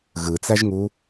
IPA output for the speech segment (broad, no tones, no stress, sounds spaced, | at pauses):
ɣ ɯ t͡s æ ʒ ŋ u